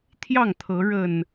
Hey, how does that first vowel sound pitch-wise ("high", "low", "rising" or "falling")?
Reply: falling